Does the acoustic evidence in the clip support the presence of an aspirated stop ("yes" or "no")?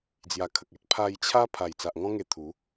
yes